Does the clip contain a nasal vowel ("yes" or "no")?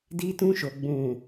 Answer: yes